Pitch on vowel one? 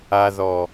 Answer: low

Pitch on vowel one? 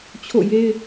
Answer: falling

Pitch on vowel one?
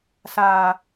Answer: low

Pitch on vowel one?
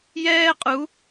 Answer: high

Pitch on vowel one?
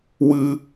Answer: high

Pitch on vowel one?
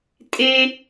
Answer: high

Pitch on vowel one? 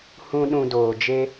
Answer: high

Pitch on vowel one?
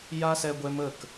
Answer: high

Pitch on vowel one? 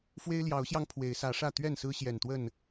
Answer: high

